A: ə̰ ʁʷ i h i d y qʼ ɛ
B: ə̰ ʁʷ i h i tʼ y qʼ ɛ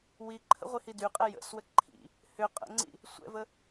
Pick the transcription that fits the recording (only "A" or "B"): A